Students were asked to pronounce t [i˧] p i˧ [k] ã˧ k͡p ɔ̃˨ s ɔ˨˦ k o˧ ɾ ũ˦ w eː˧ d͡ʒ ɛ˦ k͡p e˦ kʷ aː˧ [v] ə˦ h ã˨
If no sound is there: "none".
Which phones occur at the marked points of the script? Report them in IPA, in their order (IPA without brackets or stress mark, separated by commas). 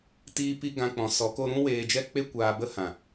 iː˧, ɡ, b